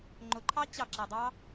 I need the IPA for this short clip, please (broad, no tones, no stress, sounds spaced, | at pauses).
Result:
ŋ͡ǃ ʊ ǃʰ ɑ t͡ɕ ɑ ǁ æ dˤ ɑ